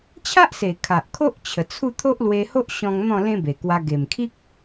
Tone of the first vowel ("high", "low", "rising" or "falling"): high